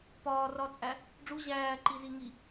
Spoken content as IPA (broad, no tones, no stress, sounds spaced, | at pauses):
p ɒː r ɒ t͡sʼ æ | ɖ͡ʐ u ʑ æː ǃ i z i ŋ i